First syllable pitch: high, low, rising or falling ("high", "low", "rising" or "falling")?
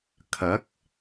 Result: rising